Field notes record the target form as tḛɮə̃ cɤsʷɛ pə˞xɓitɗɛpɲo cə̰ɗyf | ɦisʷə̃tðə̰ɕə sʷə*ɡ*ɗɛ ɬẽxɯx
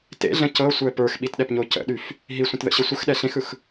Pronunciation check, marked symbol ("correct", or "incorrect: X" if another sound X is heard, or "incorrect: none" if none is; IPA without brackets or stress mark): incorrect: x